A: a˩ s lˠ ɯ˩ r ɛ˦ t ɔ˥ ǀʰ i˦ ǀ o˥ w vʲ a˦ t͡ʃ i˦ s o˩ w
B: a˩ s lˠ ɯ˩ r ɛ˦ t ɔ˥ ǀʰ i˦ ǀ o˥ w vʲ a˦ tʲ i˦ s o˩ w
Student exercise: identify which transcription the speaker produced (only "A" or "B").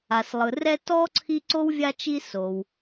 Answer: A